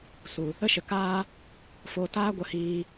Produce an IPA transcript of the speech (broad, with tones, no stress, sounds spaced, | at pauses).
s u˨ | ə˦ ʃ ə˨ k aː˦ | f o˧ t aː˦ ɡʷ ə˧ h iː˧